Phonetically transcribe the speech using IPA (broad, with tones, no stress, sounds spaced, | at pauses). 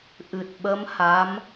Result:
ʔ ɨ˨˩ t̚ ɓ ə˧˥ m h a˧˥ m